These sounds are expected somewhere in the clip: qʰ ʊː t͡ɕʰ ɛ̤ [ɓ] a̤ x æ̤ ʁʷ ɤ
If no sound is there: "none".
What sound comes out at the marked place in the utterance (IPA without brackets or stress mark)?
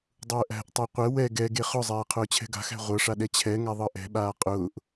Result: ɡ